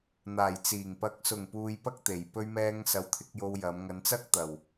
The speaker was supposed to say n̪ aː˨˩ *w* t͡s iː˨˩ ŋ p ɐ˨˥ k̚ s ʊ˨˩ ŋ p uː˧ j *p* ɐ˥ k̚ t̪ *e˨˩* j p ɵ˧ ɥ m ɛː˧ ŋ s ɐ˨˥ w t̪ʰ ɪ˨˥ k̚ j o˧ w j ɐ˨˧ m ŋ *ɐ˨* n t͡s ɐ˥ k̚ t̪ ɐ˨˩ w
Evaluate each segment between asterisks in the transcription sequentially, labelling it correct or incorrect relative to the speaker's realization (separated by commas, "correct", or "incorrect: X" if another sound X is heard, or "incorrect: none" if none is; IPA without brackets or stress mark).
incorrect: j, correct, correct, incorrect: ɐ˨˧